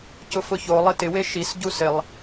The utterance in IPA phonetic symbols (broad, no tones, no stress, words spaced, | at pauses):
cʊfʊço lˠɪtɪ weʃis ɟusɪlˠ